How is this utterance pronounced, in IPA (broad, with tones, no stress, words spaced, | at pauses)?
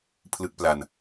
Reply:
pʰlɯ˥˩k̚pla˧n